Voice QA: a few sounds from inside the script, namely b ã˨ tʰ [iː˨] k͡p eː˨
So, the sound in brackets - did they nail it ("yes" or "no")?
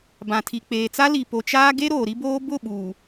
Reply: no